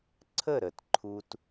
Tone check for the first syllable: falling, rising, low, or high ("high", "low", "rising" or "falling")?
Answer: falling